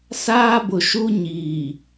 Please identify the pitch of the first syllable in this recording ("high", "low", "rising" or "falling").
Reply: high